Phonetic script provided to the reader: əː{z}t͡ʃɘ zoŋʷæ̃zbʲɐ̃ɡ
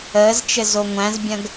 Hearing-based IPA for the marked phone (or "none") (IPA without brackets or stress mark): z